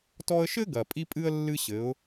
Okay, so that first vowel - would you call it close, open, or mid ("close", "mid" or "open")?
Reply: mid